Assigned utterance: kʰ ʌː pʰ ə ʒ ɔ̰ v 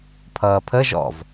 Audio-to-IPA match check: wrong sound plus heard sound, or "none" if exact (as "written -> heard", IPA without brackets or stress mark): kʰ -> pʰ